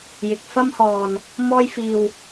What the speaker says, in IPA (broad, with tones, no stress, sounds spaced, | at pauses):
j ɪ˨ k̚ f ɐ˧ m h ɔː˨ n | m ɔː˧ j f iː˨ w